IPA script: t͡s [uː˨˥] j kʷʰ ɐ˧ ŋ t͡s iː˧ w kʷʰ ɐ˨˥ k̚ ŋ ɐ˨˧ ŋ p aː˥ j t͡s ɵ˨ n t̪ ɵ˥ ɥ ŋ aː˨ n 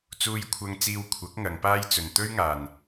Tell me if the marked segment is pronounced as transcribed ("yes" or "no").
no